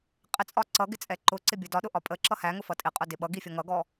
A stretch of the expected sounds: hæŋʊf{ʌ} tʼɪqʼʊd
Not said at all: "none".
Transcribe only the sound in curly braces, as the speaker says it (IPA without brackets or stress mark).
ʌ